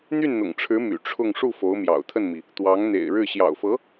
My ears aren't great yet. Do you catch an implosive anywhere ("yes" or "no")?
no